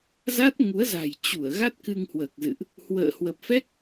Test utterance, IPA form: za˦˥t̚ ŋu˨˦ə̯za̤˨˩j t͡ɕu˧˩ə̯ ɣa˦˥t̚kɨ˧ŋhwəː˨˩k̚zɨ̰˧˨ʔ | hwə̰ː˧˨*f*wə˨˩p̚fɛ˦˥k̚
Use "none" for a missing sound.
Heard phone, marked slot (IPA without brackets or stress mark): h